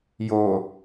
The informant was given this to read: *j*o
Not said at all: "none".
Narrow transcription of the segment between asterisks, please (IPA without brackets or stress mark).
j